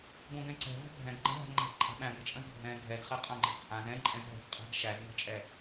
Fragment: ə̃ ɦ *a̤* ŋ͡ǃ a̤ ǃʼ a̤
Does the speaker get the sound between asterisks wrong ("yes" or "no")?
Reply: yes